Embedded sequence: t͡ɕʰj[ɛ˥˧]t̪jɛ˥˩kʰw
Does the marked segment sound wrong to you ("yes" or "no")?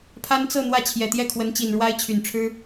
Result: yes